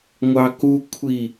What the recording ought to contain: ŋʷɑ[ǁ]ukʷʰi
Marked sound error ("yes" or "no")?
yes